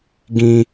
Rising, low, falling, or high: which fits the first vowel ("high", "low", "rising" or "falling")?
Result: high